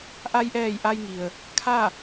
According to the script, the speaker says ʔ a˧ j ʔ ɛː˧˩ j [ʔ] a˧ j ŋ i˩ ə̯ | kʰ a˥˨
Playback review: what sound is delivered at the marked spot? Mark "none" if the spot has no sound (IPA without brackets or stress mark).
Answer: ʔ